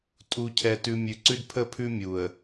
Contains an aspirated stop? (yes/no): yes